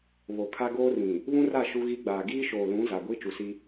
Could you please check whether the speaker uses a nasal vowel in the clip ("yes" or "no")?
yes